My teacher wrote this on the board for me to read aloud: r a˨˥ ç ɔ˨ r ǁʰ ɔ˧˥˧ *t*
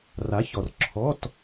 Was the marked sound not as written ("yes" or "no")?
no